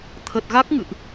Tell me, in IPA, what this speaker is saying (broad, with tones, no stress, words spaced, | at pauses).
t̪ʰə˨˩t̚ɣa˦˥k̚ ŋɨ̰˧˨ʔ